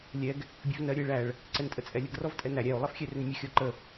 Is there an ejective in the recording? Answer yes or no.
yes